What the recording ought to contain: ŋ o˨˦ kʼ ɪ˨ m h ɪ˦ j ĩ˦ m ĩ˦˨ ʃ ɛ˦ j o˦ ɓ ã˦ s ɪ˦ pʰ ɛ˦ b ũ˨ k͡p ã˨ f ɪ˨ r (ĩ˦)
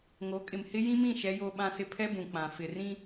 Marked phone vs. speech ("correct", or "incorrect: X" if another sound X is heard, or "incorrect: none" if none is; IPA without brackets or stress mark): correct